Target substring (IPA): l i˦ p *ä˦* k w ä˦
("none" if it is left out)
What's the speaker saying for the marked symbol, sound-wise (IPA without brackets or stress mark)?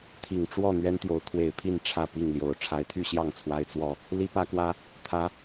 ä˦